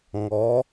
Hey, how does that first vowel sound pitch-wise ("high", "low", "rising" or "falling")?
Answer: rising